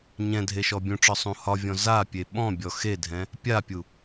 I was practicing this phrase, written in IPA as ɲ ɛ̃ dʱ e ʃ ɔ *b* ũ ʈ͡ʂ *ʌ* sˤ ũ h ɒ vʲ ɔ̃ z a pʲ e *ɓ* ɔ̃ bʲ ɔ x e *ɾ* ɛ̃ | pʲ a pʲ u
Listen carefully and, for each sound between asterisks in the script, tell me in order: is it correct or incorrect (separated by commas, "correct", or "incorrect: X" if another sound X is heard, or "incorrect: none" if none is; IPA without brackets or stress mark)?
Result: incorrect: bʲ, incorrect: ɒ, correct, incorrect: dʱ